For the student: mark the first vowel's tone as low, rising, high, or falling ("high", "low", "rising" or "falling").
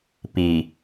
low